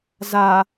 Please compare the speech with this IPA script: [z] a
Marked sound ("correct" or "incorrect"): correct